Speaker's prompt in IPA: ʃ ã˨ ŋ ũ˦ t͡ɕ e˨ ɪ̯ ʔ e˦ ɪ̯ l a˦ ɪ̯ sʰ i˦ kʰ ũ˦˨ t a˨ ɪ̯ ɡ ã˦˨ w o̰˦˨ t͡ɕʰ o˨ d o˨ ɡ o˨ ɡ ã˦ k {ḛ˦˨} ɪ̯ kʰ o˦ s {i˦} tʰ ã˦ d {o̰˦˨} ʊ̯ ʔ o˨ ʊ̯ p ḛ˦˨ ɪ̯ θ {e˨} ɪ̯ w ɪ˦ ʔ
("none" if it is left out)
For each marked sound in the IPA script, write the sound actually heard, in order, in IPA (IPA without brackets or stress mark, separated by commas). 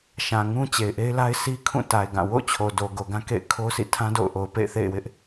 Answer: ḛ˦˨, ḭ˦˨, o̰˦˨, ḛ˦˨